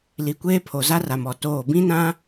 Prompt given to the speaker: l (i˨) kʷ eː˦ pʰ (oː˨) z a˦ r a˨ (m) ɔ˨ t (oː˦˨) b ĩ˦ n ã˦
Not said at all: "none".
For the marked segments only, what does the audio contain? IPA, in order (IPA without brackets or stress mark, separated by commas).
i˨, o˨, m, oː˦˨